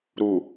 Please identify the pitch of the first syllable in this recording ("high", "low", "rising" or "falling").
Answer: low